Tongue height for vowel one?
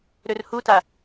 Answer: mid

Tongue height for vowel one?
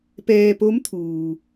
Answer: mid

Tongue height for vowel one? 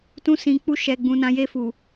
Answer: high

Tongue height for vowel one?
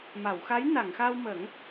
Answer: low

